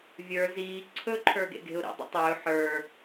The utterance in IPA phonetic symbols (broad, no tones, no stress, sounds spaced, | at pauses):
vʲ ə˞ z iː ǀʰ ɵ ǃʰ ə˞ ɡ ḛ ɡ e̤ ʊ̯ ɾ ḭ dˤ ḭ tˤ ɵː ħ ə˞